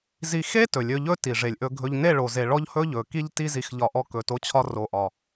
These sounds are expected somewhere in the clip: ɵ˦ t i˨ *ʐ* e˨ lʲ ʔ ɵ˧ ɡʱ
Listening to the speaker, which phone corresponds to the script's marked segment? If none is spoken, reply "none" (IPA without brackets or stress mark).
ʐ